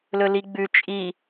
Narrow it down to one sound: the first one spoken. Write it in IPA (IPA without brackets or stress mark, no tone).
l